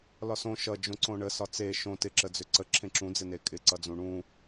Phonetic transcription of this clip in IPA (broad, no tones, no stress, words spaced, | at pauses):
lɒsõ ʃʌ d͡ʒõǀõɳə sɒt͡se ʃõ tɪ ǁəd͡zʏǀə ǁʰẽǁũ d͡zɪnekʼɪ ǀʌd͡zũɳũ